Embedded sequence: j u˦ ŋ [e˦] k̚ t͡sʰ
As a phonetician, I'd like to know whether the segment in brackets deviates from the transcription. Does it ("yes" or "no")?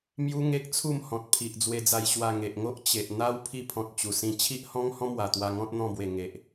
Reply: no